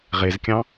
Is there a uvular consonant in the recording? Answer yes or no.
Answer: yes